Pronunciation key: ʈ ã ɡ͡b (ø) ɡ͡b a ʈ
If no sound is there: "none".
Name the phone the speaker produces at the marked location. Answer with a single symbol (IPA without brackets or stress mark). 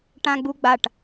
u